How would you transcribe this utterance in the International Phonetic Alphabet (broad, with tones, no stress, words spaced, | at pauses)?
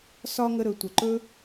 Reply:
sɒ˦ ŋə˧ɾɵ˨ tʷə˨ǃɵ˦